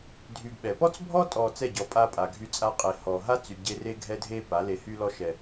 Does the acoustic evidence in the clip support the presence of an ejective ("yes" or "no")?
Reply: yes